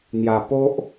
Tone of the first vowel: low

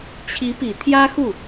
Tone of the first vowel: rising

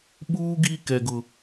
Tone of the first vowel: high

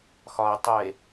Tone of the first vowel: low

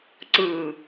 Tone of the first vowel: low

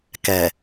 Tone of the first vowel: low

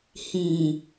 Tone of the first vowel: low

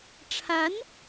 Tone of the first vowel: rising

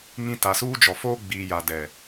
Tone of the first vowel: high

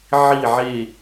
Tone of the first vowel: falling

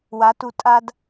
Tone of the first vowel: rising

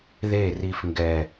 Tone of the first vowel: falling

